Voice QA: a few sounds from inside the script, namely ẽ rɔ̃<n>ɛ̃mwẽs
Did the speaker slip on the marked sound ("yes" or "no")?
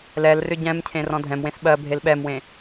yes